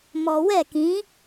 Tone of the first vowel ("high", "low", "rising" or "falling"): low